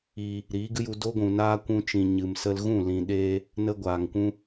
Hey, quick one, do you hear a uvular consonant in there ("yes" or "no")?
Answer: no